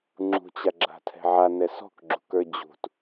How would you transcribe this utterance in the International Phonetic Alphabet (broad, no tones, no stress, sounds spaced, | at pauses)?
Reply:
ŋ͡ǁ ṳ t͡ɕ a ɡ͡ǁ a̤ tʰ ɛ̤ ʕ a n ɛ s ɔ̤ k ɡ͡ǁ ṳ k ə˞ d͡ʑ ṳ t